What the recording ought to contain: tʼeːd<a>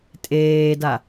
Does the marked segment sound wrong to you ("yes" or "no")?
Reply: no